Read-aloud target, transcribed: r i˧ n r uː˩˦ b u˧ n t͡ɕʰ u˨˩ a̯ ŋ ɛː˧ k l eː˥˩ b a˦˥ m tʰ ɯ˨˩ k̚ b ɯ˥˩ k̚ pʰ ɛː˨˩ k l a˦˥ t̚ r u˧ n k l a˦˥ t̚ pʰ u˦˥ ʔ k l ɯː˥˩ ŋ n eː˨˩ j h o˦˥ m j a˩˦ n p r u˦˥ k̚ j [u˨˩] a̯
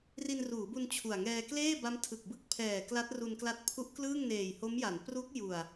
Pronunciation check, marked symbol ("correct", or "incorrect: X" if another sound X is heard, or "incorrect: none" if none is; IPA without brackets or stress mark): correct